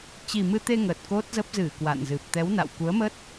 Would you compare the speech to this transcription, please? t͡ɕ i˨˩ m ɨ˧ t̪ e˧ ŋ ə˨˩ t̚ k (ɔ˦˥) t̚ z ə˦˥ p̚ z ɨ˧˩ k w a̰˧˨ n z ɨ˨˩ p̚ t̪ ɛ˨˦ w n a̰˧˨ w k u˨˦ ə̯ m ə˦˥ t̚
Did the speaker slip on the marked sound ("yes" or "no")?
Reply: yes